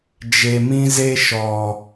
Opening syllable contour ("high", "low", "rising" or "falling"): low